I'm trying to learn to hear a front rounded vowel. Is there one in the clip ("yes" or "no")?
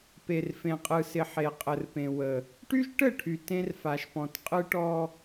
yes